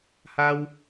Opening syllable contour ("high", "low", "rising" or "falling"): high